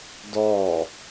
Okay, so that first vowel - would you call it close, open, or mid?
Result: mid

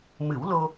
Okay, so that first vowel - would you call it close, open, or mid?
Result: close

